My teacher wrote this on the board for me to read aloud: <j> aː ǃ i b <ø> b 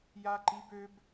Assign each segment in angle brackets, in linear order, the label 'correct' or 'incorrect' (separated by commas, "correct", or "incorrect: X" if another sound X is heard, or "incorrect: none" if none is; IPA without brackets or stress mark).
correct, correct